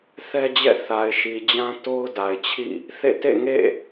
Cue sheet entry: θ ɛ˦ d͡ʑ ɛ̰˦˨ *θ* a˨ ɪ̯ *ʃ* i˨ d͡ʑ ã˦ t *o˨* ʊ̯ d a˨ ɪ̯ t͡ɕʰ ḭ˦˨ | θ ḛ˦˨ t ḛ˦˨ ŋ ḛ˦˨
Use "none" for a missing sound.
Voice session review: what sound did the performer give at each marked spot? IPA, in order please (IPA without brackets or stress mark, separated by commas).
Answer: θ, ʃ, o˦